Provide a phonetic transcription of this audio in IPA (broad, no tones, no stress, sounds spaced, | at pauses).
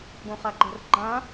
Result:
ɡ õ χ a ɡ͡ǃ ə̤ r ɡ͡ǃ ã